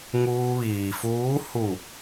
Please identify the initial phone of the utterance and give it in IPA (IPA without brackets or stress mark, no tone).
ŋ